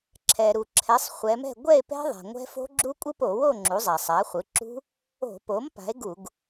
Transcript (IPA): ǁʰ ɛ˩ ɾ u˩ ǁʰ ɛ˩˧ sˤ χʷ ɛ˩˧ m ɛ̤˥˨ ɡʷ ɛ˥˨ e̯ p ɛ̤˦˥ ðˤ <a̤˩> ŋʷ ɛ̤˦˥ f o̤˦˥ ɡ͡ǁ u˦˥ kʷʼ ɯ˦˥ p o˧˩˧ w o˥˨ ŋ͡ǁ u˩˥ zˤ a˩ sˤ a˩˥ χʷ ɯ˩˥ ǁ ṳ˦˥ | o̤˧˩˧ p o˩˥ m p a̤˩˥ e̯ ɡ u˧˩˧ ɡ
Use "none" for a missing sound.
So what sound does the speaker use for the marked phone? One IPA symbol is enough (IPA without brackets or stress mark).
a̤˩